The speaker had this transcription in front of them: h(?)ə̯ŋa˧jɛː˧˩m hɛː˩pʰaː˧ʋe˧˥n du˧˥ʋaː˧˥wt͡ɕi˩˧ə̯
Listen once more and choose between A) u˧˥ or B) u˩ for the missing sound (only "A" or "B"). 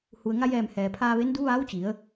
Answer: B